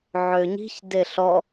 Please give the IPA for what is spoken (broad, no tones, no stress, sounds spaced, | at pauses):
ʕ ø ɲ i̤ ç d e ɬ ɔ